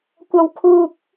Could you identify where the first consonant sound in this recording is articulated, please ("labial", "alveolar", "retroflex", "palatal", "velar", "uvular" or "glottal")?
velar